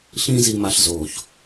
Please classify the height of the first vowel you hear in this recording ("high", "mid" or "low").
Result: high